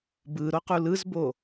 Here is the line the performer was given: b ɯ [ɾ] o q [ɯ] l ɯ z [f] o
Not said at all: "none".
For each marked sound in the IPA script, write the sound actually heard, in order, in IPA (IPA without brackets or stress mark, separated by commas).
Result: ɾ, u, b